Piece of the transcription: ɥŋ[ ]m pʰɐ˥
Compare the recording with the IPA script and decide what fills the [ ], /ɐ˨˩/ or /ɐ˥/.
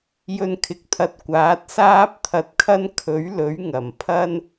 ɐ˨˩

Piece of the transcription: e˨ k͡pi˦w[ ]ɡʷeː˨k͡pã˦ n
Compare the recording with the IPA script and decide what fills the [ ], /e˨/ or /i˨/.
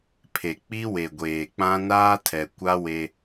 e˨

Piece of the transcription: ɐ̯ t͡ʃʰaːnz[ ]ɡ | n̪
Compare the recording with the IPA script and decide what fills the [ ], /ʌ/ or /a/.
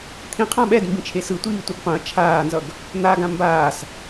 ʌ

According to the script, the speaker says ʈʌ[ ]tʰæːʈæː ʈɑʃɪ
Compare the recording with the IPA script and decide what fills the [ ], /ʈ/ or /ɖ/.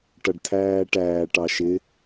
ɖ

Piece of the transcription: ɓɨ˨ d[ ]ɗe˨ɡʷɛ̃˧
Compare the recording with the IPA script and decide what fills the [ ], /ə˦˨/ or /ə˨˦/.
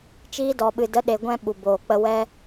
ə˨˦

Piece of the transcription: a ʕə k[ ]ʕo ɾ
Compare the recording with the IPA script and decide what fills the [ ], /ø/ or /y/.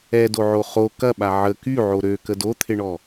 y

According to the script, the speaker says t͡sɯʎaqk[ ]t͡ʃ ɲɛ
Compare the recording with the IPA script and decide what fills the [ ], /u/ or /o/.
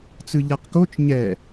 o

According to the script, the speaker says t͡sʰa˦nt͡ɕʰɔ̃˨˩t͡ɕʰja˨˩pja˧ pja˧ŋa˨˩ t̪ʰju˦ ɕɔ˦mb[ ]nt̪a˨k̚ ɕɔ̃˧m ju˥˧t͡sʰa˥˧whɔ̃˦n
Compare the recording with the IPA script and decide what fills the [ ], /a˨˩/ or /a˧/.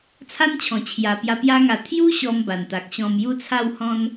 a˨˩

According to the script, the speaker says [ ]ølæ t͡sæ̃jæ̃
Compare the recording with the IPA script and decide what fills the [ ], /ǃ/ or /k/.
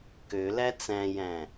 k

